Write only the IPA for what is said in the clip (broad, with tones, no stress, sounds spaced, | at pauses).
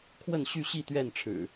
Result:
kʰ w ə˥˨ n ɕ y˥˨ ɕ i˥˨ t̪ ɥ ɛ˥˨ n ʈ͡ʂʰ ɻ̩˨˩